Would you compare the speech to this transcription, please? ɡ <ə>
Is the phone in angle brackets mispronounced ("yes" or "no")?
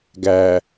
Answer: yes